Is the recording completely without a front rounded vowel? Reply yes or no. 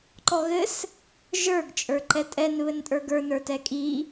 yes